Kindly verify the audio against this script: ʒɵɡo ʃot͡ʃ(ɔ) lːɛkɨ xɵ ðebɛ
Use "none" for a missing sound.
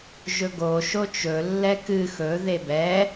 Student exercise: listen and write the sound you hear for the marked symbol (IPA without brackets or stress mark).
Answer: ɵ